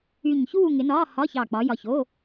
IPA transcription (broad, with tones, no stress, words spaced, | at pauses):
y˧˩ɲçuː˥˨ŋɪ˨˦nɒː˧˥˧ hɒ˧˥˧çɑ˧˩k͡pɒ˨˦ jɒ˧˩ço˧˥˧